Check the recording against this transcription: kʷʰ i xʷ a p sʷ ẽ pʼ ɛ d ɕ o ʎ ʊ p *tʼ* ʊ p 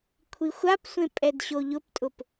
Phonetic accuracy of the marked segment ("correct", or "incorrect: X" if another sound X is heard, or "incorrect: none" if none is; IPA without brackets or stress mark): correct